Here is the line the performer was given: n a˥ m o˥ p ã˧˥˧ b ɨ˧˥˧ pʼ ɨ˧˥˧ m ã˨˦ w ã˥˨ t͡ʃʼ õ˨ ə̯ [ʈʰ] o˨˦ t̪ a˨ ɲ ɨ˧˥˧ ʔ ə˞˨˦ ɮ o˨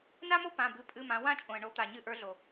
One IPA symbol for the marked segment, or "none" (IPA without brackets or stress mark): ɳ